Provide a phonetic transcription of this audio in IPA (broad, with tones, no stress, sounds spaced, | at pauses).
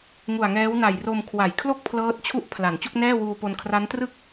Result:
ŋ u˨˩ a̯ ŋ ɛː˦˥ w n a˨˩ j r o˧ m kʰ w a˩˦ j kʰ l o˥˩ k̚ pʰ l ɤː˦˥ t̚ t͡ɕʰ u˥˩ ʔ pʰ l a˩˦ n t͡ɕ u˥˩ k̚ n ɛː˥˩ w uː˧ p o˧ n kʰ r a˦˥ n t r ɯ˥˩ k̚